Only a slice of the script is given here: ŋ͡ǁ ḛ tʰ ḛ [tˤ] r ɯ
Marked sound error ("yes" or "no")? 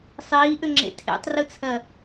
no